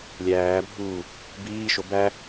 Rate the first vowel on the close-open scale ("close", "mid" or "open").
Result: open